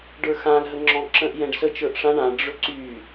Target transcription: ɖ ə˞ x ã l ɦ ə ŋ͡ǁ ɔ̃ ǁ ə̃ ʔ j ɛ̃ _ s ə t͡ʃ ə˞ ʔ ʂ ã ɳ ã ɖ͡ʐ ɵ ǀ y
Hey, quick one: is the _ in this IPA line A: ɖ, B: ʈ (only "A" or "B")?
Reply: A